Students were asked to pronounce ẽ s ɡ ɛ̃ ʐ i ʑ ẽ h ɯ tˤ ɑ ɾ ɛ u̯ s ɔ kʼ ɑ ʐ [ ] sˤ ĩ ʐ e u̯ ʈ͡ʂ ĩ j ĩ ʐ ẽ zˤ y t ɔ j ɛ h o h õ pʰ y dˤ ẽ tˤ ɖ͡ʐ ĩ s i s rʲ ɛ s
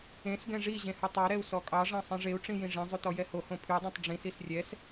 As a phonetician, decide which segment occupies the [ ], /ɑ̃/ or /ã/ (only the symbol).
ɑ̃